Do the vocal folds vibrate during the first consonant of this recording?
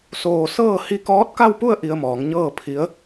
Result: no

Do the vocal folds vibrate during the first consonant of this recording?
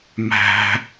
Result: yes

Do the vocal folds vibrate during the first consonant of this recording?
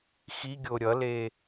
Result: no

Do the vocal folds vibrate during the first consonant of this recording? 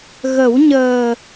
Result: yes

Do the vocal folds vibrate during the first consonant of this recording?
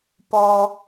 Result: no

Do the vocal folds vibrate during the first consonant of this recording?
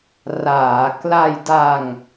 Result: yes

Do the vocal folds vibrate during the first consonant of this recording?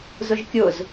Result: yes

